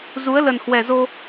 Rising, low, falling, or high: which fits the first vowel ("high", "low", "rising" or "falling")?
rising